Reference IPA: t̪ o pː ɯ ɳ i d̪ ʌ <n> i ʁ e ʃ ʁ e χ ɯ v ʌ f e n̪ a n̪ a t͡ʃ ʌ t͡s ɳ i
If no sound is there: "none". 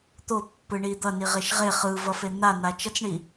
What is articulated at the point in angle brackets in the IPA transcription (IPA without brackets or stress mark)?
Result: n